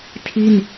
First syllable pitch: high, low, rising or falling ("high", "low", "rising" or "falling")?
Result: falling